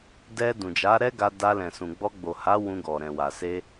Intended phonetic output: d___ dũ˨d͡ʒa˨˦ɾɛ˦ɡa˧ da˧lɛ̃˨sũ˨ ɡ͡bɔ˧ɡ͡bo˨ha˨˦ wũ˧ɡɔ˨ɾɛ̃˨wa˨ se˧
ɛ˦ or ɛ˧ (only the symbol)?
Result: ɛ˧